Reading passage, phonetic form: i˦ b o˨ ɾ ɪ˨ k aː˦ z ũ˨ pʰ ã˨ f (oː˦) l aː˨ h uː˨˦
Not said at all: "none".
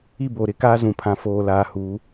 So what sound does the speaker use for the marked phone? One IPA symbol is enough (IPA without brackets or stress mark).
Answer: oː˨